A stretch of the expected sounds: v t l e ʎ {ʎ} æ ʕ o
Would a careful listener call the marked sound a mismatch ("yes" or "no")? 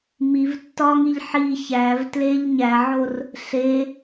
yes